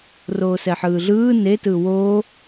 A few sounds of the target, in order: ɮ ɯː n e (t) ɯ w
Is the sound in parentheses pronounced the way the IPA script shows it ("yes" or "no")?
yes